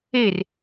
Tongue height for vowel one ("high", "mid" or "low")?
mid